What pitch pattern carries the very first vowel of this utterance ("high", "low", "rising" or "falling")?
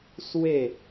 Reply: falling